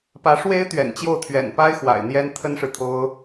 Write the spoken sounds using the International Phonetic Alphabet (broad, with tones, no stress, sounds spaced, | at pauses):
p ä˧˥ ʂ w e˧˥ ɪ̯ t̪ ɥ ɛ̰˨˩ n t͡ɕ j o˥˩ ʊ̯ t̪ʰ ɥ ɛ̰˨˩ n p a˥ ɪ̯ x w a̰˨˩ ɪ̯ n̪ j ɛ˥ n t̪ʰ ə˥ n ʂ ɻ̩˨ t̪ʰ o˥ ʊ̯